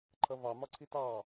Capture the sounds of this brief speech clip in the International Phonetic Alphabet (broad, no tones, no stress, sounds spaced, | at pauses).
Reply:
ǃʰ ʌ v ɑ m ɒ ǀʰ i t ɑ